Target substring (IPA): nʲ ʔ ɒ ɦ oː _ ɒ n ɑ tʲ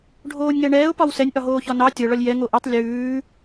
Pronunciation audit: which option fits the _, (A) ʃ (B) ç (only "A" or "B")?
B